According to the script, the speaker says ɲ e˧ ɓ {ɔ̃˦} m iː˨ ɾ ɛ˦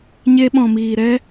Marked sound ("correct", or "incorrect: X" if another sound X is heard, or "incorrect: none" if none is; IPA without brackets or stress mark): incorrect: ɔ̃˨